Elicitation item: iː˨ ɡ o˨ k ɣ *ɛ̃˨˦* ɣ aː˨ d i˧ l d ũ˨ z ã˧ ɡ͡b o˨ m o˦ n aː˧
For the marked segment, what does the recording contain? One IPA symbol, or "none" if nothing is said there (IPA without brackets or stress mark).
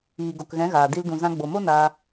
ɛ̃˨˦